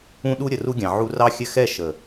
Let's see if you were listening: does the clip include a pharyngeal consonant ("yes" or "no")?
yes